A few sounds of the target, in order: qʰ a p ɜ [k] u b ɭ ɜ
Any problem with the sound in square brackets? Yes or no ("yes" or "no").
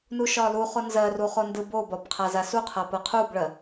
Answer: yes